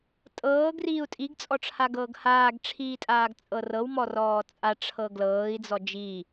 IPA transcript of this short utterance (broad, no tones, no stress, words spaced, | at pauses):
tʼɤːɡ riːu̯tʼiɡ t͡sʼɔʈ͡ʂʰaɡɤːɡhaːɡ ʈ͡ʂʰiːtʼaːɡt͡sʼɤrɤw mɔrɔːt͡sʼa ʈ͡ʂʰɤɡlɤːi̯ d͡zɔd͡ʒi